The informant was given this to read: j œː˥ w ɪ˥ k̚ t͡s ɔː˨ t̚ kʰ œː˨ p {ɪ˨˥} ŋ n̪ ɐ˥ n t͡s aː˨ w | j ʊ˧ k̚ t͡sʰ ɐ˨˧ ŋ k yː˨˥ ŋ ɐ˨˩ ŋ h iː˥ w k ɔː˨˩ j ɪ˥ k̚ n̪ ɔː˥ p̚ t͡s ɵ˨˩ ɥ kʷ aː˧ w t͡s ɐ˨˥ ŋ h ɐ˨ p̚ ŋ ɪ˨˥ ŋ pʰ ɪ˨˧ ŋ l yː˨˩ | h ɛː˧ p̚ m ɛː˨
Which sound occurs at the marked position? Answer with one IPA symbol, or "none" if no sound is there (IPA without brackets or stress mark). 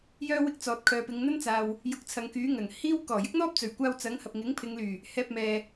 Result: ɪ˨˧